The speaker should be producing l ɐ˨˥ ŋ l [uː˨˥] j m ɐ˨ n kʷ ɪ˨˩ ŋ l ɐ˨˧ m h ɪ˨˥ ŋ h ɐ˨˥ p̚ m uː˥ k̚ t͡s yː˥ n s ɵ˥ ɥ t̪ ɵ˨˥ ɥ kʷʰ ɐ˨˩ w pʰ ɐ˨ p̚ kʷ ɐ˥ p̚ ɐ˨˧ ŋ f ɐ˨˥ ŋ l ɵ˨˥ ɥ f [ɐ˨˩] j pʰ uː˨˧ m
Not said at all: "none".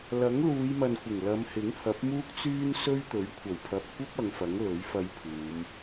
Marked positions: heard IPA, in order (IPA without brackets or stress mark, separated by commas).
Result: uː˨˧, ɐ˧